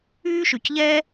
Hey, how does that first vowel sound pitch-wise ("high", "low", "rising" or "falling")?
high